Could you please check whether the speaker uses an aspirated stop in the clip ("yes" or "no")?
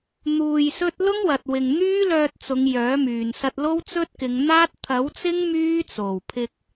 yes